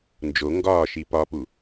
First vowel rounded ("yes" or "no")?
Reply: yes